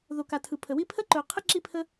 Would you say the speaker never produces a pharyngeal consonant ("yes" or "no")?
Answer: yes